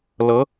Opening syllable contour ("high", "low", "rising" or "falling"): rising